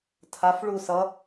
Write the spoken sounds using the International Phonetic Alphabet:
tʰafɭu sʌ

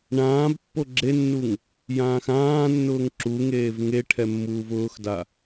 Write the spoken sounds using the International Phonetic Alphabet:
ɳãːbpːo ɡ͡ǁenːuŋ | jãːxãːnːʊːŋ ǁuŋeːv ŋeʈʰɛ mːuːvʊːxda

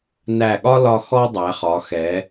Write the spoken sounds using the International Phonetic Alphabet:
næ˧˩ɠɒ˥lɒ˧ xɔ˥dˤæ˩˧χɒ˩˧xɛ˩˧

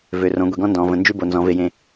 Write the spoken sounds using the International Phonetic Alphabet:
vø˨rõ˨˦ ɡʷi˨ɡɔ̃˦ndɔ̃ː˨ və̃˨ nd͡ʒʉ˦bo˨ nzɔ̃˨˦ve˦jẽ˦

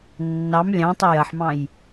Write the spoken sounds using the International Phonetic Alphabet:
nːɑm lʲɑ̃tˤə jɐħmɑ̃j

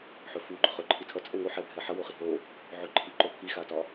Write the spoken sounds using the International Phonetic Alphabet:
ħɵfu ɡ͡ǃɵχɵǃʰi tʰʌt͡sʼɛ ŋoħɛbʱɛ ħʌwoχi ɦo | ʕɵǃʰiǃo pʰixatɒ

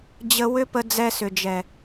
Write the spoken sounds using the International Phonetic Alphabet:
d͡ʑə˧ wʏ˦pə˧ d͡zɛ˧sʏ˨d͡ʒɛ˨

